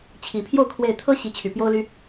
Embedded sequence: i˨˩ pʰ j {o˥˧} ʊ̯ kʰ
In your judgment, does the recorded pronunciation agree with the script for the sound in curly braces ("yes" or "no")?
yes